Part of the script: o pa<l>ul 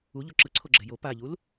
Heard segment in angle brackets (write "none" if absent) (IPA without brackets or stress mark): ʎ